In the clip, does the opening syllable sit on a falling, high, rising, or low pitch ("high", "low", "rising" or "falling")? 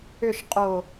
falling